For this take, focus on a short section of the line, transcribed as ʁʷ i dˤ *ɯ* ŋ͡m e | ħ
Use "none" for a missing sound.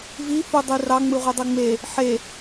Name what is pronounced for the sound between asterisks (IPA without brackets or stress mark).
ɯ